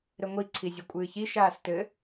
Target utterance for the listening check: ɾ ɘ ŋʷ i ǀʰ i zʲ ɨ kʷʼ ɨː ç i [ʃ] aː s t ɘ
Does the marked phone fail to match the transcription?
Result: no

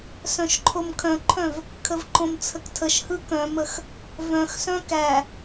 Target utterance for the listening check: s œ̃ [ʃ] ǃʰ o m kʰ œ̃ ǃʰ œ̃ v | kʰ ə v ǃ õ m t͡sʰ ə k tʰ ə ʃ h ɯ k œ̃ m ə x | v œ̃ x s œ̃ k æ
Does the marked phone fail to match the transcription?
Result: no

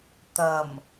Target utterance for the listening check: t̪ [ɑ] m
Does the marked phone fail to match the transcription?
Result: yes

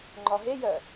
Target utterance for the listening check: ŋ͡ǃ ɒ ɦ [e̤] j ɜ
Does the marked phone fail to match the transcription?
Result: yes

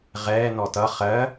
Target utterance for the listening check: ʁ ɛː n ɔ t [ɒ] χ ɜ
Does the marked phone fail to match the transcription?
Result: yes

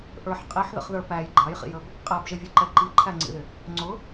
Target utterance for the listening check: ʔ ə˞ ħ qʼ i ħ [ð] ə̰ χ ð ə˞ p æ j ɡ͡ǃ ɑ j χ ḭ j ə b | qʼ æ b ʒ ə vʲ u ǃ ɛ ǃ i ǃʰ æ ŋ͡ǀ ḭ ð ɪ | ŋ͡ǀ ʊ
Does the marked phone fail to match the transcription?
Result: no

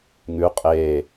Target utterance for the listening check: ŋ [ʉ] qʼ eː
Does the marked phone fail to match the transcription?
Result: no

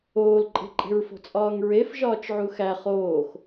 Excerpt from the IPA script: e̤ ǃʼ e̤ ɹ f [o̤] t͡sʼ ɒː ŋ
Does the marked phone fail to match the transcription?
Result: no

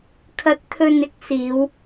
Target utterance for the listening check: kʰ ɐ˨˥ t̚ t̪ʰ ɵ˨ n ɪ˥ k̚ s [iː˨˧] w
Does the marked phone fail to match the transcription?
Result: no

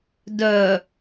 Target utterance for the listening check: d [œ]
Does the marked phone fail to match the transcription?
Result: no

